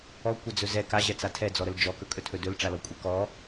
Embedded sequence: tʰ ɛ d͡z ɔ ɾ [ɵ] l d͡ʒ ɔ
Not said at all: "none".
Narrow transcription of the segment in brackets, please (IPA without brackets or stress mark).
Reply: ə